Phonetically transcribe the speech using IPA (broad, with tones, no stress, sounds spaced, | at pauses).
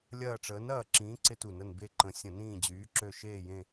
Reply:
lʲ ɐː˦˨ ʈ͡ʂ əː˨˥ n ɐː˦˨ ǁ ĩː˨˥ ǀ ɪ˥ t u˧˩˧ n ə˦˨ n b e˦˨ ǃ ə̃˨˥ sʲ ə̃˧˩˧ n ĩː˦˨ d͡ʑ yː˨˥ ǁ ø˦˨ ʃ eː˦˨ j ẽ˦˨